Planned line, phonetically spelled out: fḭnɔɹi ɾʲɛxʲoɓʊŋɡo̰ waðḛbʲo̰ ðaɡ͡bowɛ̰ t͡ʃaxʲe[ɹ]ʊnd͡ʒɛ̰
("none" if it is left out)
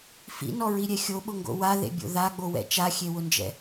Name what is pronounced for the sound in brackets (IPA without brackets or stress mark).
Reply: w